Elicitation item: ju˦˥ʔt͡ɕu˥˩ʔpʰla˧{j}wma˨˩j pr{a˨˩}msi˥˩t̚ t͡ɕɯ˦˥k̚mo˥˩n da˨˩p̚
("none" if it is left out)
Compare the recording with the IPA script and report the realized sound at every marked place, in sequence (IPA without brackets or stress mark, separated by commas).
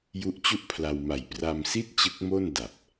none, a˧